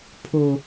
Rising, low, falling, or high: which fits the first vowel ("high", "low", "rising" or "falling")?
high